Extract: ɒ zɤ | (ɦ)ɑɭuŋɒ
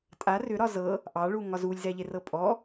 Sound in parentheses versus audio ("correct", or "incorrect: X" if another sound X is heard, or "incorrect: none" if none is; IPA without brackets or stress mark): incorrect: ʔ